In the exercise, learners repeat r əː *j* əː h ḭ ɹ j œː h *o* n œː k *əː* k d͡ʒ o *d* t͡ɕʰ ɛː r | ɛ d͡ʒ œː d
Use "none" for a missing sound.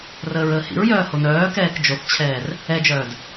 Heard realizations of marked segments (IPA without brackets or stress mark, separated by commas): ɹ, o, ɛː, θ